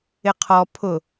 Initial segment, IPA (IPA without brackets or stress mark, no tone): ɪ